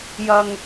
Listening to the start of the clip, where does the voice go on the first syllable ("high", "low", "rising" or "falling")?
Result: low